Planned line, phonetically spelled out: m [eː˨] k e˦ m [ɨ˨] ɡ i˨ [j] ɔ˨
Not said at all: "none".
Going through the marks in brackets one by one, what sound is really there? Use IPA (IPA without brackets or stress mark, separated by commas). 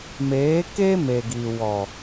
eː˨˦, e˨, w